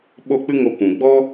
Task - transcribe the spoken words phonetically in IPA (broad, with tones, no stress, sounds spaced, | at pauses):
ɓ o˦˨ k͡p ɨ˦ ŋ o˧ kʷ ũ˨ ɡ͡b ɔ˦